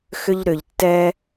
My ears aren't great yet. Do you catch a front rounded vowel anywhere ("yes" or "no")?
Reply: yes